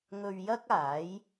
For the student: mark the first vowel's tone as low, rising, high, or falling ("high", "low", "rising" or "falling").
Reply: low